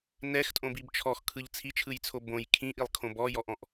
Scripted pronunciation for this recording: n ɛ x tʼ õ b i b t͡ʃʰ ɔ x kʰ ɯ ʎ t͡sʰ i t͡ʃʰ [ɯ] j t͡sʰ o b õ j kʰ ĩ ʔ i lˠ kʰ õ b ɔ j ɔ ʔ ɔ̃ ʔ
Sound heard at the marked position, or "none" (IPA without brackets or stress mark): ɯ